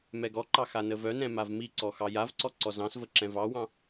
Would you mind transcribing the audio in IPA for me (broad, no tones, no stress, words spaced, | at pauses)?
mɛɡɔǃɑ xanəvœnɛ̃ mavmiǀɔ xɑjavǀɔ ǀɔzɑ̃svə ǁɛ̃vɑwɑ̃